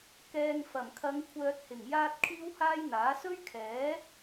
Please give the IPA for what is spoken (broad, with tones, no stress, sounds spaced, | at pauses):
k ɛː˨ ŋ f ɐ˨˩ m kʰ ɐ˨˧ ŋ kʷʰ œː˨ t̚ h ɪ˨˩ ŋ j aː˧ t̚ kʰ iː˥ w h aː˥ j n̪ aː˨˥ s ɵ˥ ɥ kʰ ɛː˨˥